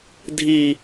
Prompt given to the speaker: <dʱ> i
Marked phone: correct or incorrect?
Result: correct